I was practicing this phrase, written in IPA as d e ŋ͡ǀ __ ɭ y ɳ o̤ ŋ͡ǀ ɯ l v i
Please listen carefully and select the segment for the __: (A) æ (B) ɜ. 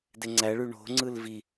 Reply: A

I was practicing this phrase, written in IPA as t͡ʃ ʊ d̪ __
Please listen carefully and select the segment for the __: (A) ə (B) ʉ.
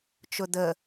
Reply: A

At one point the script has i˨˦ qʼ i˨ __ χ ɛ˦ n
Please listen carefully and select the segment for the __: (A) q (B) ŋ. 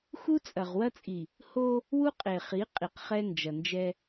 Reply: A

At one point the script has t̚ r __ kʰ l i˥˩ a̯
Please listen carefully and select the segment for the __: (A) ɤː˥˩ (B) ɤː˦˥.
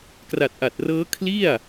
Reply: B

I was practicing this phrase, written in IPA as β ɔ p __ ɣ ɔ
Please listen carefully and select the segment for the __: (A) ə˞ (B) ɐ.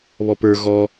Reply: A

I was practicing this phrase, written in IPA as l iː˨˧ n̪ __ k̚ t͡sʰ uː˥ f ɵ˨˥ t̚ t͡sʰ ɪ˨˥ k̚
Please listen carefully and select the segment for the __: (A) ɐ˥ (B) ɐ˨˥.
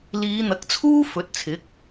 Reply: B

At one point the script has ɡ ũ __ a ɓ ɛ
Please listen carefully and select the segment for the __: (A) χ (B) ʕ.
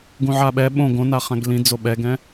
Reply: B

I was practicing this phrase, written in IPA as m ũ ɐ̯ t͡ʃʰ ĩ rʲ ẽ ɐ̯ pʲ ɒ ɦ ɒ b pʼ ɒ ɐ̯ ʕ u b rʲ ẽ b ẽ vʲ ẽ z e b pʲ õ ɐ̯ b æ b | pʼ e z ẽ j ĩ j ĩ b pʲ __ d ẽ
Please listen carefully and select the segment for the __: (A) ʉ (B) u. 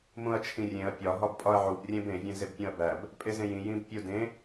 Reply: B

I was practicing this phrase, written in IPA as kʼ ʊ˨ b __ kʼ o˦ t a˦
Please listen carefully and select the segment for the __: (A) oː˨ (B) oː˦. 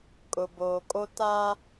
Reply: A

